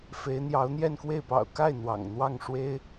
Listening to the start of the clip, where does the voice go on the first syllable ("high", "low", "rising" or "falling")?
rising